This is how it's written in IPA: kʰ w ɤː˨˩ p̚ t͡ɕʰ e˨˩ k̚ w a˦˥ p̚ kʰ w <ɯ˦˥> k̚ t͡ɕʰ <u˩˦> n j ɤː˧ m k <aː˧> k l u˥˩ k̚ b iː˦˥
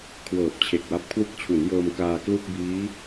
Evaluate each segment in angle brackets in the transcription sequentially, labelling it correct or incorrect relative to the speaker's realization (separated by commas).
correct, correct, correct